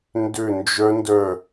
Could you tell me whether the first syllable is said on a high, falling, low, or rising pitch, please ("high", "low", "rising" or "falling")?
falling